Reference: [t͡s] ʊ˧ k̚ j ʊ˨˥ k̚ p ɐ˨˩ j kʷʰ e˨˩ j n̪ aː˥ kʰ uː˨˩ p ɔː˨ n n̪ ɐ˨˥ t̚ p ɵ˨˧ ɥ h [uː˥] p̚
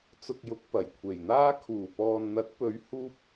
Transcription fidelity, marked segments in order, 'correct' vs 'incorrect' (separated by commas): correct, correct